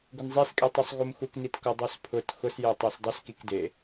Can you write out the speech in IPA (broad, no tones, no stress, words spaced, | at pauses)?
ɡʊnzˤeskʼetˤusˤ ɣumxuknitkʊ dˤuspʰʊt xʊsje tˤesdˤʊs kikde